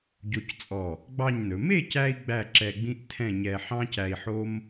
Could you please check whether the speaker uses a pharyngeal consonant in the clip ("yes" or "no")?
yes